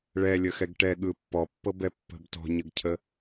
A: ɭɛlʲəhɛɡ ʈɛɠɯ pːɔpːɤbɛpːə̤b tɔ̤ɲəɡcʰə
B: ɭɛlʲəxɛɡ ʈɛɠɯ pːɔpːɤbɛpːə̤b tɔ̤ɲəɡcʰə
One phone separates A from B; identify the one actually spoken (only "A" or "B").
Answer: B